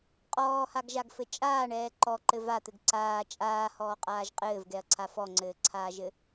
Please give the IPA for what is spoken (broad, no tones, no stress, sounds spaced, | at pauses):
qʼ ɔː h a ɡ ʒ a ɡ f ɘ t͡ʃʼ aː ɳ ɛː ǃ ɔ ǃ ɘ v a t̪ ɘ ɡ ǀ aː t͡ʃʼ aː h ɔː qʼ aː ʒ qʼ ɘː v ɡ ɛ ɐ̯ ǀʰ a f ɔ ŋ͡ǀ ɘː ǀʰ aː ʒ ɘ